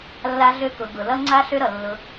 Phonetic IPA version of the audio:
lː a˧ ɮ ø˧ k ʊ˨ ɡ ʊ˨ l ʌ˧ ŋ͡ǀ a˧ ɬ ø˦ ɾ ʌ˨ lː ʊ˧

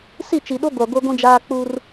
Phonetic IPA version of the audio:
s i˦˨ t͡ʃ i˨ ɗ o˦ ɡʷ a˨ ɡʷ e˦ ɡʷ ĩ˦ d͡ʒ aː˦ k͡p u˦ r

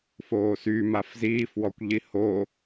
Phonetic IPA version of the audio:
f oː s y m a f z iː f w ɔ kʷ ʎ i h o

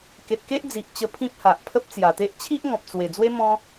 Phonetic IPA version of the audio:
k e˨ t̚ k e˦ ʔ d͡z i˨ ʔ t͡ɕ ə˧ pʰ ĩ˦ p̚ h a˨ ʔ pʰ ə˦ p̚ t͡s j a˨˩ t̪ e˦ ʔ t͡ɕʰ i˦ ʔ ŋ ɔ̃˨ p̚ t͡s w e˨˩ d͡z w e˦ m ɔ̃˦

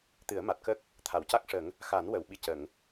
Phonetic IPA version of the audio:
t̪ ɨ˨˩˦ ə̯ m a˨˩ t̚ k ə˦˥ k̚ | t̪ʰ a˨˩˨ w c a˦˥ k̚ ʂ ə˨˩˦ ŋ | x a˨˩˦ n w ə˨˩˨ w ɓ i˧ c ə˨˩˨ ŋ

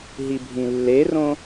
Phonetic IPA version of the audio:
ɦ i bʱ ĩ lː e r õ

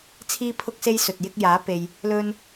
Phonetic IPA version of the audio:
t͡sʰ iː˥ pʰ ʊ˥ k̚ s e˥ j s ɵ˨ t̚ j ɪ˥ k̚ j aː˨˥ p e˨ j | l ɵ˥ n

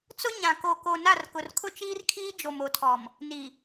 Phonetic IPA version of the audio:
t͡s ʊ˦ ɲ ã˨ k o˨ k o˨ n a˦˨ r k ʊ˨ r kʰ ʊ˦ t͡ʃ iː˦ r kʰ iː˦ d͡ʒ o˨ m o˨ tʰ ɔ˨ m | n i˨

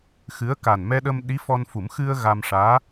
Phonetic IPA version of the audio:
x ɨ˧˥ ə̯ k a˨˩ n m ɛ˧ ɗ ə˧ m ɗ i˧˥ f ɔ˧ n f u˨˩˦ m x ɨ˧ ə̯ ɣ a˧ m ʂ aː˧˥

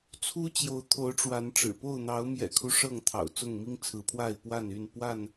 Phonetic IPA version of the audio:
t͡sʰ u˦ t͡ɕ j o˨˦ ʊ̯ t̪ʰ o˨˦ ʊ̯ ʈ͡ʂ w a˨˦ n ʈ͡ʂ ɻ̩˨˩ p o˥˨ ʊ̯ n̪ ɑ˨˦ ʊ̯ m j ɛ̰˨˩ kʰ u˦ ʂ ɤ˥˨ ŋ t̪ʰ ɑ̰˨˩ ʊ̯ t͡s ʊ˥˨ ŋ m i˦ ŋ t͡sʰ ɹ̩˨˦ pʰ w a˥˨ ɪ̯ p w a˥˨ n y˥˨ n p w a˥˨ n

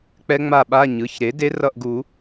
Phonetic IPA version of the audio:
k͡p ɛ˦˥ ŋ͡m a˦˨ ɓ a˧˥˧ ɲ ɯ˩˧˩ ç ɾ e˩˥ d e˦˥ r ʌ˦˨ ʔ ɡ u˨˩˦

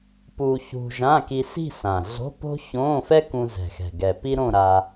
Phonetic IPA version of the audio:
p u˧ ç ṳ˧ ʒ ã˧˥˧ k i˧ s i̤˥˧ s ã˨˩ ɮ o̤˧˥˧ p o̤˥ ç õ˧˥˧ f ɛ˥ k ũ˧ z ɛ̤˨˩ x ɛ̤˨˩ ɡ ɛ˨˩ p i˥ ɾ õ˥˧ ɾ a˧

